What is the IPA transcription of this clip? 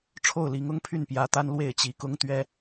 ʈ͡ʂʰ o˥˨ ʊ̯ l i˨˦ ŋ ʊ˦ ŋ pʰ y˥˨ n p j ä˨˦ t̪ a˦ n l w e˥˨ ɪ̯ t͡ɕ i˨˦ k ʊ˦ ŋ t̪ ɥ ɛ˦

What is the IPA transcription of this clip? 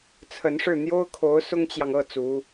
t͡sʰ ə˧˥ n ʂ ɻ̩˥˩ n̪ j o˥ ʊ̯ kʰ o˧˥ ʊ̯ s ʊ˥ ŋ t͡ɕ j ɑ˨ ŋ ɤ˥˩ t͡s u˧˥

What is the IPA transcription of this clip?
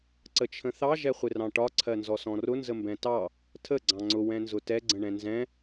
ǀ ə t͡ʃʰ ə̃ θ ɑ ʒ ɛ χʷ ɪ r ɑ̃ ʈ ɒ ǀʰ ɜ n z ɔ s ɔ̃ r ʊ n z ə m b ɛ̃ t ɑ | tʰ ə ɡ͡ǀ ɑ̃ ŋ͡ǀ ʊ w ɛ̃ n z ʊ t ɛ ɡ͡ǀ ə̃ ɳ ɛ̃ n z ɛ̃

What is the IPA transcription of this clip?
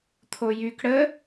t̪ʰ o j y k ɽ ə

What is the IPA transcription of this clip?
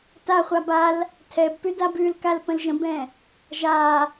t a χʷ a b a l | tʰ ɛ b p ʉ d a b ʉ l k a l p ə̃ l ʒ ə̃ b ɛ̃ | ʒ a

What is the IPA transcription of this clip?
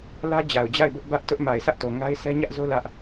l ä˦ d͡ʑ a˨ ʊ̯ d͡ʑ a˦˨ ɪ̯ b ʊ˦ ʔ b ä˦ ʔ t ʊ˦ ʔ m a˨ ɪ̯ sʰ ä˦ ʔ t o˨ ŋ a˦ ɪ̯ s ɛ˦ ɲ ä˦ ʔ z o˦ l ä˦ ʔ

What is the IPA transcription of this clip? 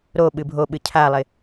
ɾ o ɓ ɨ bʱ o ɓ ɨ cʰ a lˠ ɪ

